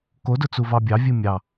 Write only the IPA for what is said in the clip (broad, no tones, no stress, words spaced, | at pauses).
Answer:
kodʊ t͡suvɑbʲɑ vʲɨmʲɑ